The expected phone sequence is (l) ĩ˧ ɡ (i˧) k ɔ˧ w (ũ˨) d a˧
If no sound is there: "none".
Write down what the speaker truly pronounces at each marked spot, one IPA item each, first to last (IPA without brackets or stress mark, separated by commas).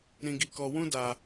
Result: ɾ, i˧, ũ˦